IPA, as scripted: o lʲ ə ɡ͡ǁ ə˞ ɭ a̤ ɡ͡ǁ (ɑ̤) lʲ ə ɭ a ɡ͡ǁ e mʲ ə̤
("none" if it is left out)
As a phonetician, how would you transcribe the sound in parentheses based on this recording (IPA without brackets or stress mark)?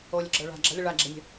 ɑ̤